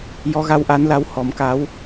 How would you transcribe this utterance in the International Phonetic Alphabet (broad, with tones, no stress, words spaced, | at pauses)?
jɔ˧˥ɣa˧˥wʔa˧˥nla˧˥w hɔ˨˩˦mka˧˥w